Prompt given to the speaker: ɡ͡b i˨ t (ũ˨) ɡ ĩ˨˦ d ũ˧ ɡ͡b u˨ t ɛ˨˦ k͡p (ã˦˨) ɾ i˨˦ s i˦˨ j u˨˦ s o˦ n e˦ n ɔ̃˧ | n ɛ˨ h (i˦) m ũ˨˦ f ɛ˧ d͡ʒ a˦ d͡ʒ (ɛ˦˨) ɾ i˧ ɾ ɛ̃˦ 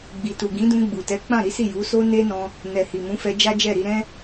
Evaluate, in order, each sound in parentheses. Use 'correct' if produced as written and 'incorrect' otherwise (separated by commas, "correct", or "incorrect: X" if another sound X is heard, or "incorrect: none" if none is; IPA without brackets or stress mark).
incorrect: u˨, correct, incorrect: i˨, correct